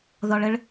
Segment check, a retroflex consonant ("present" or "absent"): present